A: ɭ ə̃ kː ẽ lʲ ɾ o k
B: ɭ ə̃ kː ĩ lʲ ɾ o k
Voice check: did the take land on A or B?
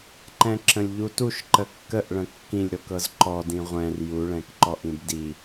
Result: B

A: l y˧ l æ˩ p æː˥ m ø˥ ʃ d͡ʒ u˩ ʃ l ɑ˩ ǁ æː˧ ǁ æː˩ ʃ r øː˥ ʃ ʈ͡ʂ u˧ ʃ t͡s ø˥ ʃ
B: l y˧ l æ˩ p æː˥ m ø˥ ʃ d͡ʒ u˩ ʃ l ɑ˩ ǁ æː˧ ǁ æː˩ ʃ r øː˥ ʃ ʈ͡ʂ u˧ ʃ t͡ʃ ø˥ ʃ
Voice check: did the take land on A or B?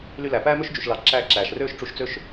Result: A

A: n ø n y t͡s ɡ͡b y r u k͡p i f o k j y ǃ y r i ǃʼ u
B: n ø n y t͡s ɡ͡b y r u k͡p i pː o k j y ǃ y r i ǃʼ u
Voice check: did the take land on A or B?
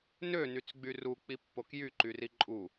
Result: B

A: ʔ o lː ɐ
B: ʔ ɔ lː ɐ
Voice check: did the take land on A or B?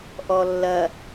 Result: B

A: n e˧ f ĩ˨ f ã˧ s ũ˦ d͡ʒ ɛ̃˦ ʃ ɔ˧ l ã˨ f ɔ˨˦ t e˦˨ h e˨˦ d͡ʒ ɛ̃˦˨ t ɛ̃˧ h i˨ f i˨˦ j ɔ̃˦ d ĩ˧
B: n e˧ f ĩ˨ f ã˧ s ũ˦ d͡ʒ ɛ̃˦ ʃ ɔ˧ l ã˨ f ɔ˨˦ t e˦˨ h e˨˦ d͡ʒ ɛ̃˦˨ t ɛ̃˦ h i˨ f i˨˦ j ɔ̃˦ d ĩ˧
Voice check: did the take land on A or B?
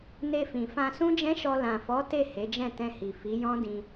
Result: A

